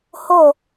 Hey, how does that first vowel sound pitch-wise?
falling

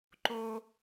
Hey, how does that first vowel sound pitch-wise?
high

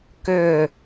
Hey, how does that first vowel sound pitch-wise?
falling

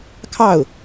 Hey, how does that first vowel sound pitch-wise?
falling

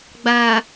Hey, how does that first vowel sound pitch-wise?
low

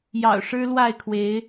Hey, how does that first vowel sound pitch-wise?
low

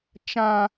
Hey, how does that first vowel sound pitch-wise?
high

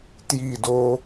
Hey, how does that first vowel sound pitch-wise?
falling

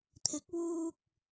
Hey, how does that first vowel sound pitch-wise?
rising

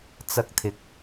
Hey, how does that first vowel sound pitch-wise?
high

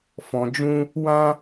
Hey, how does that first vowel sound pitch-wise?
low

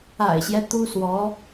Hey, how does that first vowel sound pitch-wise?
low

